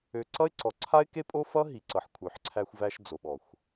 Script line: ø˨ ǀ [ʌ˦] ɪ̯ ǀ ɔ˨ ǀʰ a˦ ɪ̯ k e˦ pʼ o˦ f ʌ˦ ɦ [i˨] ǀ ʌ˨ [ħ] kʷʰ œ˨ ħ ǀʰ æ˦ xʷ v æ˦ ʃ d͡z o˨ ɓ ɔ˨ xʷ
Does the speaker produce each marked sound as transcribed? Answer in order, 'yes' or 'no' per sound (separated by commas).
yes, yes, yes